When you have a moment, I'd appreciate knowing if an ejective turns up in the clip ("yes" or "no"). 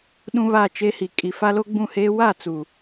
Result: yes